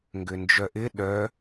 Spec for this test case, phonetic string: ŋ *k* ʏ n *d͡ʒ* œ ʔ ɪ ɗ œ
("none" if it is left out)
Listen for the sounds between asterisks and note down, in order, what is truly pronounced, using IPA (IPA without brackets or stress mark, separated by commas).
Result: ɡ, d͡ʒ